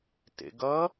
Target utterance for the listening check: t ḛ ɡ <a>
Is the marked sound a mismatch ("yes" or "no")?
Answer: yes